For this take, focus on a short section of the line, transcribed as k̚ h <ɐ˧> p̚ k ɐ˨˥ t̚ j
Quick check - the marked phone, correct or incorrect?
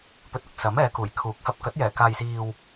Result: correct